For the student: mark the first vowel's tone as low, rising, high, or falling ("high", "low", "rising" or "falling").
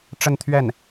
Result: falling